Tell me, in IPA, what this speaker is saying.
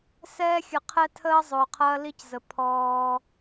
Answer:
s ɛː˦ xʲ ə˨ qʰ ɛ˦ tʰ əː˦ zˤ ʊː˨ qʰ ɐː˦ l i˦ c z ə˨ pʰ ɔː˦

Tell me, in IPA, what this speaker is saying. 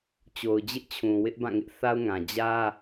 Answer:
t͡ɕ o˨ ʊ̯ d͡ʑ ɪ˦ ʔ t͡ɕʰ ũ˨ w ɪ˦ ʔ b ã˦˨ ŋ ɪ˦ ʔ θ a˦ ʊ̯ ŋ ã˨ d͡ʑ ä˦

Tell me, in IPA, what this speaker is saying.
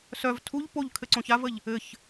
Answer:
s œ v tʰ u ʎ p o ʎ kʰ ɘ ǀ õ ç a v ə ʎ | ɘ ç

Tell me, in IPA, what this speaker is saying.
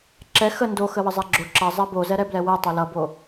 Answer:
ǁ ɛ x ə n d o x ə w ə zˤ ɛ ɡ͡ǁ o ǁ ʌ zˤ ɛ b o z ɛ ɾ ɛ b l ɛ w ɛ tˤ o l ʌ b o

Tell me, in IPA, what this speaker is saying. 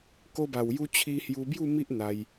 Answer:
k o˧ b a˨˩ w j u˧ t͡ɕʰ i˧ h j u˧ b j u˥˧ m i˦ ʔ n̪ a˧ j

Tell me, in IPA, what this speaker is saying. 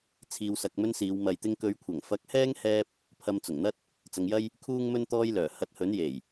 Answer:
t͡sʰ iː˧ w s ɐ˧ k̚ m ɵ˥ n s iː˨˧ w m ɐ˨ j t̪ ɪ˧ ŋ k ɵ˨˧ ɥ kʷʰ ɐ˨˩ ŋ f ɐ˨˥ k̚ h ɛː˥ ŋ h ɛː˥ p̚ | pʰ ɐ˧ m t͡s ʊ˨˩ ŋ n̪ ɐ˥ t̚ | t͡s ɐ˨˧ ŋ j ɐ˥ j | kʰ uː˥ ŋ m ɵ˥ n t̪ ɔː˥ j l œː˨˩ h ɐ˧ t̚ h ɵ˨˥ n j e˨˩ j

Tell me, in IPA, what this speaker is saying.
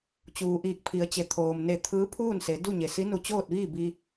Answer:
t͡ɕ uː˩ ʔ iː˧˩ k̚ pʰ i˩˧ ə̯ t͡ɕ e˩ t̪ʰ oː˩ m n e˧˩ t̪ʰ ɯː˧˥ pʰ uː˥˨ n s e˩˧ d u˥˨ ɲ e˩ s i˧˥ n u˧ t͡ɕ oː˥˨ t̚ ʋ iː˥˨ b i˧

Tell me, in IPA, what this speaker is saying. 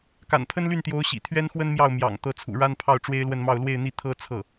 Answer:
k a̰˨˩ n pʰ ə˥ n l y˥˩ n t̪ j o˧˥ ʊ̯ ɕ ḭ˨˩ t̪ʰ ɥ ɛ˥ n x w ə˥ n m j ɑ˥˩ ʊ̯ m j ɑ̰˨˩ ŋ t̪ ɤ˧˥ t͡sʰ ṵ˨˩ ɻ a˥ n pʰ ɑ˥˩ ʊ̯ ʈ͡ʂ w e˥ ɪ̯ l w ə˥˧ n m ɑ˥˧ ʊ̯ l w e˥˧ ɪ̯ n̪ i˥˩ t̪ʰ ɤ˥ t͡sʰ ɤ˥˩

